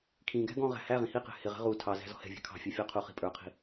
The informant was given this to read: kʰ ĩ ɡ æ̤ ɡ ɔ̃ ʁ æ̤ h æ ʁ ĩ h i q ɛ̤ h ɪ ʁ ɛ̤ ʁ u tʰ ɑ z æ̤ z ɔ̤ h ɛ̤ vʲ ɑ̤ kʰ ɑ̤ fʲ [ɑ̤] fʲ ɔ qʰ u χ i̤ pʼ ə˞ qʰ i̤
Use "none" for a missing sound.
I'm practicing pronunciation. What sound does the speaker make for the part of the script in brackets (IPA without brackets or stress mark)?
ɑ